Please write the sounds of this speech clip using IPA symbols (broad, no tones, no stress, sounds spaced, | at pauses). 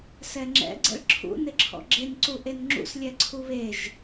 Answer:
s ɛ ŋ͡ǁ ɛ̰ ɡ͡ǀ ɛ̰ ɭ ǁʰ ṵ n ɪ ǁʰ ɔ̰ ɡ͡ǁ e n ǀ u ʔ e n ŋ͡ǁ ṵ s lʲ ɛ ǀʰ u β e ʒ